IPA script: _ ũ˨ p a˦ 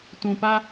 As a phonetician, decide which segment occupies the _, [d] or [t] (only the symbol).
t